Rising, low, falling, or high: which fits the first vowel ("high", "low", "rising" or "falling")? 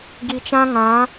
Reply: low